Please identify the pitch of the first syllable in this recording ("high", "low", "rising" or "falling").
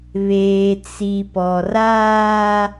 low